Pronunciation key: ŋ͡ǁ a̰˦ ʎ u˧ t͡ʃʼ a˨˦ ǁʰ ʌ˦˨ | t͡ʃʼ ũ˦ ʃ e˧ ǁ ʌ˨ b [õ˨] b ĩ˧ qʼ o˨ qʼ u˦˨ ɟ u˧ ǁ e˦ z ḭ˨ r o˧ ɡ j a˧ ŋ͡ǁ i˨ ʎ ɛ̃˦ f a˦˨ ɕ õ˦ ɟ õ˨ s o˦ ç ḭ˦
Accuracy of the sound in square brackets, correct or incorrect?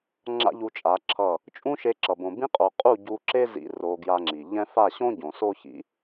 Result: correct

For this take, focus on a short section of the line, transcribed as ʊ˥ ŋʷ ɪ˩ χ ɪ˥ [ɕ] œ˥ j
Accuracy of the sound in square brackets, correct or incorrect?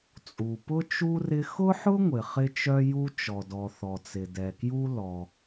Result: incorrect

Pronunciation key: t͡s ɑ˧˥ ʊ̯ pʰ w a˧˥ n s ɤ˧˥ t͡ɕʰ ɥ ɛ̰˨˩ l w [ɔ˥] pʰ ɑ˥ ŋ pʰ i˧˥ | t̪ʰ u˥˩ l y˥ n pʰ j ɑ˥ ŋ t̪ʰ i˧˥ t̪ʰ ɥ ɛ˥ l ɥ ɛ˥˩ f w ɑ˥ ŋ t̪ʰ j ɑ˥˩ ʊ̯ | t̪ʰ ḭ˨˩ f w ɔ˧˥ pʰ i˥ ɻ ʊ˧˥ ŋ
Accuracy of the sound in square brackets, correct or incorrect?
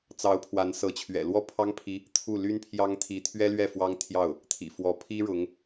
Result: correct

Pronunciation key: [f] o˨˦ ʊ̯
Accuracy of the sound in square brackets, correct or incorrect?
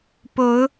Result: incorrect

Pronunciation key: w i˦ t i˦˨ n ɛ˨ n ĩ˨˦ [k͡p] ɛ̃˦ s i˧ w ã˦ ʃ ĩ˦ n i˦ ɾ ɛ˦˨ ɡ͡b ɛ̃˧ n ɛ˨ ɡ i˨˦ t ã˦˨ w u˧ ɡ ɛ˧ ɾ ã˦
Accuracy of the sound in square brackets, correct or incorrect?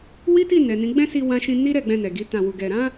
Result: incorrect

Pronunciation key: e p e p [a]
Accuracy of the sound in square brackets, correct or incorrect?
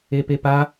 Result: correct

